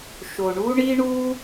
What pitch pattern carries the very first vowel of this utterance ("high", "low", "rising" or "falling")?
low